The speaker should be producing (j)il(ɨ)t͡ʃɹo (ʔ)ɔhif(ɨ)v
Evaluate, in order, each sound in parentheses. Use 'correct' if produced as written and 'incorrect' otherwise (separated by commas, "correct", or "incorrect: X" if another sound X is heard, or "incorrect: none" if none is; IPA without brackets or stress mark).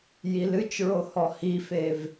correct, correct, incorrect: h, incorrect: e